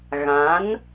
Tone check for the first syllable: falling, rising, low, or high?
rising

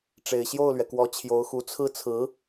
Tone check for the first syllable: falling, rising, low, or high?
low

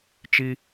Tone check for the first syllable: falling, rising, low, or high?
high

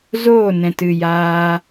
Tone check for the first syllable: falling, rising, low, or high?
falling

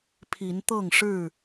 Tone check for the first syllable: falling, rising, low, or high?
rising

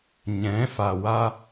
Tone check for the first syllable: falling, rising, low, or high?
rising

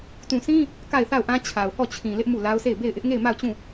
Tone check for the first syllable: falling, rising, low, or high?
low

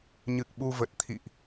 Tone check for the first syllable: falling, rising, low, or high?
low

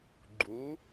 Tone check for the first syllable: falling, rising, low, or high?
rising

